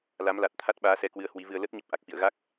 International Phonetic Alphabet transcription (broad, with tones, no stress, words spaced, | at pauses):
la˨˦mla˨˩t̚t̪ʰa˦˥t̚ɓaː˨˦ sɛ˧kwɨ˧ə̯hwi˨˦vɨ˧ə̯ lə˦˥t̚ɲə˨˩p̚ ʔa˨˩k̚fḭ˧˨ə̯ ɣa˦˥k̚